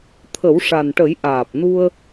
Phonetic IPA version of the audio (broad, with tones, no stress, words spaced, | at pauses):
t̪ʰə˨˩˦wʂa˨˩nʈə˨˩˦j ʔaː˨˩p̚nu˧ə̯